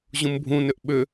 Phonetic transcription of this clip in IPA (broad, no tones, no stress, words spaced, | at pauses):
ʑũmbʱũnʏʔ ɓʏ